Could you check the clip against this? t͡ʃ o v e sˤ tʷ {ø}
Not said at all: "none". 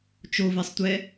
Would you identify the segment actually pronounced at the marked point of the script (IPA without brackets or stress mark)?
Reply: ɛ